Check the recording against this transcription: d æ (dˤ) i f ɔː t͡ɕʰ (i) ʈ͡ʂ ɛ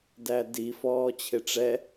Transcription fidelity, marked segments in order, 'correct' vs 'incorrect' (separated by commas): incorrect, incorrect